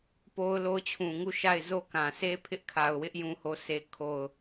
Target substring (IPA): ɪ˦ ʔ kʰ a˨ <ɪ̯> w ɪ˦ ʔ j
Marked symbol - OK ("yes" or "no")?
no